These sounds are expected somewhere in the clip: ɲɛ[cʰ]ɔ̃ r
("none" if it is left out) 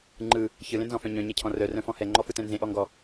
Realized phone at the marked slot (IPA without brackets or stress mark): cʰ